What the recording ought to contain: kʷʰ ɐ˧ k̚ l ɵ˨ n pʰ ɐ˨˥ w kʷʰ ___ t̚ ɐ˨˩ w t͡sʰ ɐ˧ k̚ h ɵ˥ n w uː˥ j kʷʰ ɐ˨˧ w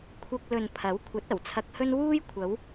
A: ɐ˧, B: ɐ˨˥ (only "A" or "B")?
B